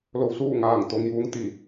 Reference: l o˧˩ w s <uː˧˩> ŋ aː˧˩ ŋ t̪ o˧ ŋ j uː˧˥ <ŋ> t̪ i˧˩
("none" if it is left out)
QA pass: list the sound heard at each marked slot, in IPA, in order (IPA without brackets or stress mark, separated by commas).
uː˥˨, ŋ